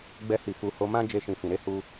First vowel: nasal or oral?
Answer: oral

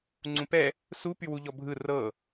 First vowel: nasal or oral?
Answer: nasal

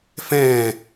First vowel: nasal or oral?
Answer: nasal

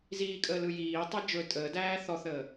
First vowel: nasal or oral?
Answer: oral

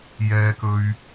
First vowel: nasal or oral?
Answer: oral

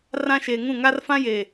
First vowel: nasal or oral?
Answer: nasal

